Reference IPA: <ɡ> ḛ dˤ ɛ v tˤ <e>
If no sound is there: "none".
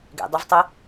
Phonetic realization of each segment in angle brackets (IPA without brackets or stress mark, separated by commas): ɡ, e